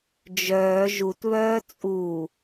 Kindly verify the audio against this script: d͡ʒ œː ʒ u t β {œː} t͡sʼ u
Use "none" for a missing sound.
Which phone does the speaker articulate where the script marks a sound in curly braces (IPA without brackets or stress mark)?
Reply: œː